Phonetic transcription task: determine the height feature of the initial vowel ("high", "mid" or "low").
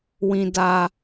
high